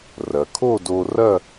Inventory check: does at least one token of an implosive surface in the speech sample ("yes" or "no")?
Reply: no